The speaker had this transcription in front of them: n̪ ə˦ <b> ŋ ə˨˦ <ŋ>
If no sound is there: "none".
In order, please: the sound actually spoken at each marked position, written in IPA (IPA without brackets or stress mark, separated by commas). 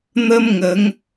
m, ŋ